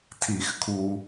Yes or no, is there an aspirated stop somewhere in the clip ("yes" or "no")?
yes